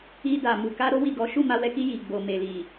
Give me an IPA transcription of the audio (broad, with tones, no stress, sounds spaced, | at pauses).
i˧ d a˨ m u˨ k a˧ ɾ o˦ w i˦˨ ɡ ɔ˨˦ ʃ u˦˨ m a˧ w ɛ˧ k i˧ j i˨ ɡ͡b o˨ m e˨ l i˨